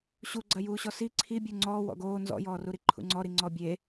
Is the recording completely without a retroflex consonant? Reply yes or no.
yes